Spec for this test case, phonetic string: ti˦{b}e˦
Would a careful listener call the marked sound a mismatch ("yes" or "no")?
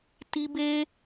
no